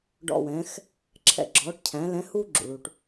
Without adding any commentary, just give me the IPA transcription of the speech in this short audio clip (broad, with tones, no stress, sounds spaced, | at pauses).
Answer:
ɖ ɔ̰˦˨ w ɛ̃ː˨˥ x | ǁʰ ɛ̰˦˨ ɡ͡ǁ ɔː˨˥ ʈ cʰ æ̃˨˥ l ɛ̃˨˥ h uː˥ ɡ͡ǁ ṵ˩ ɭ u˩ ʈ